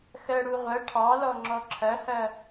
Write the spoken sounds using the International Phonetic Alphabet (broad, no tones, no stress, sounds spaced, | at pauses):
x ɜ ɽ u ʁʷ ɐ ʈʰ ɑ l ɔ ŋ͡ǁ ɔ ǁʰ ɐ h ɐ